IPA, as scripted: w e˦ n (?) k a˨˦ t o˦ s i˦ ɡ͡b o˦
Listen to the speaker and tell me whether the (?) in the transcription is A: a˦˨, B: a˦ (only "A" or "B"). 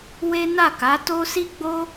A